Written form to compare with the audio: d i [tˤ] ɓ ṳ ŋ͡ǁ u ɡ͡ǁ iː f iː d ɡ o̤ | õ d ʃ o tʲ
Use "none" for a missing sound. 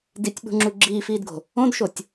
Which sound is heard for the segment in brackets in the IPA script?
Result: tʲ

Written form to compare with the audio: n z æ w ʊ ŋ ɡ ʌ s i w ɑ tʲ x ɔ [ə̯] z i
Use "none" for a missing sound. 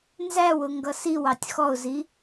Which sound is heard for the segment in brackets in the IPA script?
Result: ʊ̯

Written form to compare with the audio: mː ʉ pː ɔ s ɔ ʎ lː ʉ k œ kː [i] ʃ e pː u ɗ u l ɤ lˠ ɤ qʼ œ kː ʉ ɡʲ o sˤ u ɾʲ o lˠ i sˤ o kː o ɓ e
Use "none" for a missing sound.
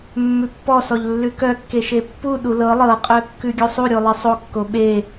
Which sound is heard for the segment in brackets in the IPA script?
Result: e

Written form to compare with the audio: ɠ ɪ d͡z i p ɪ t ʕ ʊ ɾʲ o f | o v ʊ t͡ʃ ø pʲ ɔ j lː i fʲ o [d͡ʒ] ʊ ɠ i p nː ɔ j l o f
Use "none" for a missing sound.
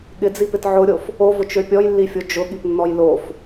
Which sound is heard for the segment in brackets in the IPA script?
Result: d͡ʒ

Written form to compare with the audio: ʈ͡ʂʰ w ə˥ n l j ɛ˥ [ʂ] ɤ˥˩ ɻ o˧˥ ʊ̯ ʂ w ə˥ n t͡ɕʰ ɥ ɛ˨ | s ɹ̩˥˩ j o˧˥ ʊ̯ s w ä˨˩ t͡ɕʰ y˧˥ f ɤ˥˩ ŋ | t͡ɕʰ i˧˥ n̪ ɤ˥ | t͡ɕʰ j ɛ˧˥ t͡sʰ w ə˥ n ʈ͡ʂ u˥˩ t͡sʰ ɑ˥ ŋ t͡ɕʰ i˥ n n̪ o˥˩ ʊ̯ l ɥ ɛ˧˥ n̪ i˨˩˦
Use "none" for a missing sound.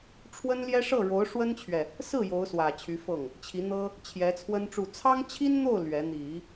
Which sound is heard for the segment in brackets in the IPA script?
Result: ʂ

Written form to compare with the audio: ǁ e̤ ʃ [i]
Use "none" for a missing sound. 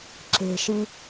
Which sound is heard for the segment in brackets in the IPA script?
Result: i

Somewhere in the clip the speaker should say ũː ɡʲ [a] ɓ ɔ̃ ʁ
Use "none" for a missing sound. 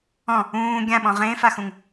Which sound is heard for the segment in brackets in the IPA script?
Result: ã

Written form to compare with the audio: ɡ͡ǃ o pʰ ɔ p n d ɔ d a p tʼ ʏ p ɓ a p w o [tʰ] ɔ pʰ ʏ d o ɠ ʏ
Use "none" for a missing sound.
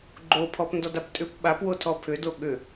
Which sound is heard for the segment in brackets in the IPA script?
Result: tʰ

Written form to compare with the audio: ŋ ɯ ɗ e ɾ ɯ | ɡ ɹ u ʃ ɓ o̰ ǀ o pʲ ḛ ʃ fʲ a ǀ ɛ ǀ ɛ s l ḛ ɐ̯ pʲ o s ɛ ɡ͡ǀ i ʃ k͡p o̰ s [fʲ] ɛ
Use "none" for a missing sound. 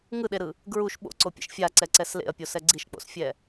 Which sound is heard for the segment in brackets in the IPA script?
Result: fʲ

